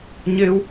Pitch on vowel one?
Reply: high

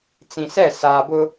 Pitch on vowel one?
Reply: low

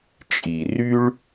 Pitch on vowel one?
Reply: low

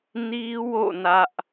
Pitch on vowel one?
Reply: high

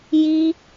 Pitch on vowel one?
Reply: high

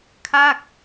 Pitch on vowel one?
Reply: falling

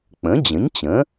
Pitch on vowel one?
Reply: rising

